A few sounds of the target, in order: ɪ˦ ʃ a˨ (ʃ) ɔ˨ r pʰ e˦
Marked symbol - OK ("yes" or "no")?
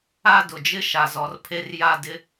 no